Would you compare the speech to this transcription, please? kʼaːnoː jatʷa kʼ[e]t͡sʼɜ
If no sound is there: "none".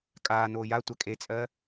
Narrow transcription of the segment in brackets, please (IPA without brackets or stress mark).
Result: e